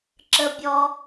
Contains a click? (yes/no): yes